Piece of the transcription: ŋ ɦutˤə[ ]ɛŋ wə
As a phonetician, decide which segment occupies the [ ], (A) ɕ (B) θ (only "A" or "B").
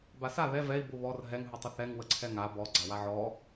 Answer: B